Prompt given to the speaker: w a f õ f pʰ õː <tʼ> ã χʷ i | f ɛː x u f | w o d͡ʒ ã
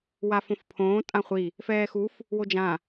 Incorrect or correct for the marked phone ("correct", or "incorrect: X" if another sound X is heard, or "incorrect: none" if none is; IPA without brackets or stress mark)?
correct